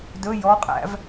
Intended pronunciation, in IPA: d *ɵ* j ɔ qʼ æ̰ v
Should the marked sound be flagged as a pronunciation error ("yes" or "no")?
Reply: no